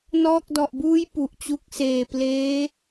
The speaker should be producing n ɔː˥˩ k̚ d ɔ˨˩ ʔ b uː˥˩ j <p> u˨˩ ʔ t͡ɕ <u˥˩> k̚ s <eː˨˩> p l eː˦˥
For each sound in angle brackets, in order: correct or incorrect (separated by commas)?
correct, incorrect, correct